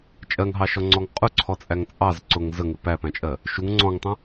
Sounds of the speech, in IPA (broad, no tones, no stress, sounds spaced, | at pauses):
t͡ʃʼ ɜ ŋ ɦ ɑ ʃ ɔ ŋ͡ǀ ɔ ŋ qʼ ʊ ǀʰ ɔ t͡sʼ æ ŋ t͡sʼ ɑ z ǀ ʊ ŋ z ə ŋ ɪ p æ p æ̃ t͡ʃʼ ɜ | ʃ u ŋ ŋ͡ǀ ɔ̃ ŋ tˤ ə̃